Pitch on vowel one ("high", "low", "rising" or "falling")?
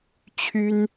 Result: high